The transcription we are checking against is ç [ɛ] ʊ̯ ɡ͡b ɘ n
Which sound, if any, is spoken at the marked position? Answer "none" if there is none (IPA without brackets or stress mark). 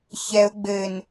ɛ